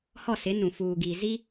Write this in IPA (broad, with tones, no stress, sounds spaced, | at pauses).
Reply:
h ɔ˦˨ s ɪ˨˦ n ũ˨ f uː˨ ɡ iː˨ z i˦